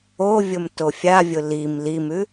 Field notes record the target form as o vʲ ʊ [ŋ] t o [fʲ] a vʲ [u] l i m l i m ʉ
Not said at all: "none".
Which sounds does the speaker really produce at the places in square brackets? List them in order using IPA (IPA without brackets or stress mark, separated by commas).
m, fʲ, ʊ